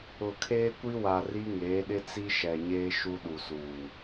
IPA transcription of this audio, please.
ʊ˨ kʰ eː˦ kʷ i˦ w a˨ r i˦ ŋ eː˨˦ ɗ ɪ˦ t͡s i˦ ʃ ɛ˨ ɲ eː˦ ʃ u˦ ɗ u˨ s uː˨

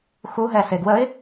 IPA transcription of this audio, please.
x u ɦ ɛ s e ɡ w ə ɪ̯

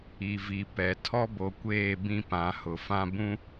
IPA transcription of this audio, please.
i˨ v i˨ p ɛ˨ tʰ ɔ˦ b o˨ kʷ eː˦˨ b ĩ˦ p ã˨˦ h ʊ˨ f ã˦ b ũ˦

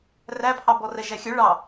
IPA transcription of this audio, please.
r æ pʰ ɑ b ɔ r ɛ ʒ æ xʲ œ ɭ ɑ

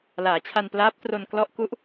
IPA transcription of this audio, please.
l aː˩˦ t͡ɕʰ a˧ n p l aː˦˥ p̚ t r o˧ n k l ɔ˦˥ ʔ k u˦˥ ʔ

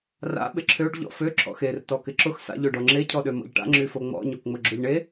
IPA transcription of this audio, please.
r a̰ ɓ ɪ ǁʰ ø ɖ ʎ ɔ̰ f ø ǁʰ ɔ̰ x e r t ɔ k ɪ ǁ ʊ x s a̰ ʎ ø ɖ ɔ ŋ͡ǁ e cʰ ɔ ɗ ø m ɔ̰ ʎ ʈ a̰ ŋ͡ǁ y f o ŋ͡m ɔ̰ ɲ o k ŋ͡m ʊ ɡ͡ǁ ʊ ʎ ɳ e

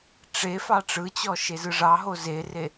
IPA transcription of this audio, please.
ʈ͡ʂ e f ɑ ʈ͡ʂ ɯ t͡ɕ ɔ ʃ e z ɯ ʐ ɑ ɦ o z e r e

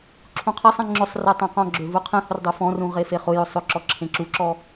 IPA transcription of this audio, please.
ǁʰ ũ qʰ ɛ sˤ ɛ̃ ŋ͡ǁ ʊ sˤ r ɛ tˤ ẽ q ɔ̃ ɡ͡ǁ ø v u qʰ ẽ h ʊ r dˤ u f ɔ̃ r ũ ʁ e f e χ ʊ j ʊ sˤ ʊ ǁ ɔ ǁʰ ẽ ǁ u ǁ ɔ

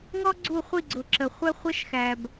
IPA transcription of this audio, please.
ŋ ɔ˦ ɡ͡ǀ u˦˨ χʷ i˦˨ ɡ͡ǀ ʊ˨ ǁ ə˨ χʷ ɛ˦ χʷ ʌ˦ ʃ x æ˨ b

